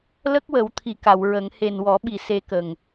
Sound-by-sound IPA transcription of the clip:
lə˦˥k̚wə˨˩˦wt̪ʰi˨˩ ka˨˩˨wɹə˨˩˦ŋ he˨˩nwɔ˨˩˦ɓi˨˩ se˧kə˨˩ŋ

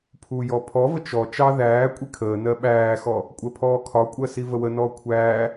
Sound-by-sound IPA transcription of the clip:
pʰujɔ pʰɔvə t͡ʃɔ t͡ʃɑ ðæː kʷʼikʰəːnɜ ɓæːxɔ | kʷʼɜpʰɔːkʰɒkʷʼɜ sivəwənɔː kʷʰæː

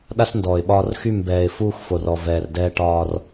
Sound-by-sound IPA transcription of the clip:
ɗa˦sndɔː˨ɪ̯ɓɒː˦r xy˦˨mbɛː˨ɪ̯fuː˦x fo˨rɔ˨ vɛː˨rdɛː˦ ʈɒː˦r

